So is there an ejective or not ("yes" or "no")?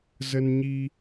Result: no